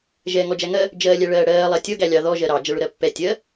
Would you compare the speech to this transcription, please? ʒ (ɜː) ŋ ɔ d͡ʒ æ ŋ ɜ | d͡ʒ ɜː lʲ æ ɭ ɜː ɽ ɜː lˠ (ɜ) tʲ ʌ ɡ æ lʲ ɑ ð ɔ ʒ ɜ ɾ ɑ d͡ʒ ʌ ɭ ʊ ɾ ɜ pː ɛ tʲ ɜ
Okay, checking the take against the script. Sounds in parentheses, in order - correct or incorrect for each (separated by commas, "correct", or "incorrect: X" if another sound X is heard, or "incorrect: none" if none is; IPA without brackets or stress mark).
incorrect: ɛː, correct